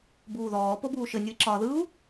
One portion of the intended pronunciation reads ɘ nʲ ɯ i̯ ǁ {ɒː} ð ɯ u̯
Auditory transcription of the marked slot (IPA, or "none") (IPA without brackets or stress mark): ɒː